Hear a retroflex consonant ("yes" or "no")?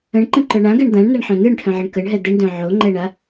yes